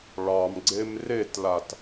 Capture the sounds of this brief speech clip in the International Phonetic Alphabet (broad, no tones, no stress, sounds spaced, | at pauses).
ɭ ɑ m ɡ͡ǀ e m r e t l a t